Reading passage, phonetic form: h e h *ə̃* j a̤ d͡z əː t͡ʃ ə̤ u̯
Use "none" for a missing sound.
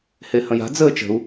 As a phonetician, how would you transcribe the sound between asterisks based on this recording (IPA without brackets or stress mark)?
ə̃